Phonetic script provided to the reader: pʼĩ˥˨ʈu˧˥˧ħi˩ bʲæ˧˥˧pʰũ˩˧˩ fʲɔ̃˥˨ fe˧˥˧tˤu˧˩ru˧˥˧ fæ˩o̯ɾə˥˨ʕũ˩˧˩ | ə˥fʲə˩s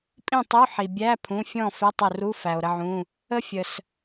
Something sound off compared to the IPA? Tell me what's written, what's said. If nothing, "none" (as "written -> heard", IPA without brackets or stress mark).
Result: ʈ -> tˤ